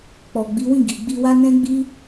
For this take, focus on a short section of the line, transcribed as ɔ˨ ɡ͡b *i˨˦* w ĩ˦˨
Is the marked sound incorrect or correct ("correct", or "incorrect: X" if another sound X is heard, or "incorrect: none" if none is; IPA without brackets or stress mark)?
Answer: correct